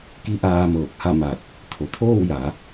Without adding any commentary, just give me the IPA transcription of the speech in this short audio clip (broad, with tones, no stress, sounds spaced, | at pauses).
k i˧˥ ʔ aː˧ m ɤː˧˩ k̚ h a˥˨ m a˧˩ t̚ | t̪ʰ o˩ t̪ʰ oː˥˨ w j a˩˧